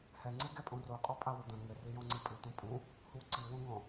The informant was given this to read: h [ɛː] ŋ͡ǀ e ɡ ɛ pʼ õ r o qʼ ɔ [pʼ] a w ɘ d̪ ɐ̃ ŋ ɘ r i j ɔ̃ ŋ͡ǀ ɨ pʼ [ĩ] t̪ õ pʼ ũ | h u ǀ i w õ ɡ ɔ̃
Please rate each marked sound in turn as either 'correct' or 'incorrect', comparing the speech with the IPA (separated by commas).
incorrect, correct, incorrect